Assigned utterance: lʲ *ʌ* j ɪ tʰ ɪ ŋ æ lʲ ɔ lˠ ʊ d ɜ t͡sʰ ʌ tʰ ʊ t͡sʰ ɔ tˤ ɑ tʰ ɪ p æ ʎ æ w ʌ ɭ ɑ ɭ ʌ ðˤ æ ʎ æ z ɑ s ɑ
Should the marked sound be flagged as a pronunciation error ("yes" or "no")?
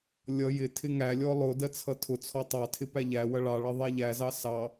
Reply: no